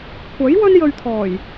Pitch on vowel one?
rising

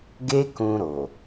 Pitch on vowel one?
high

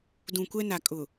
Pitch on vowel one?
low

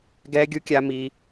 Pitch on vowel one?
high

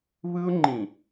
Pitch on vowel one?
high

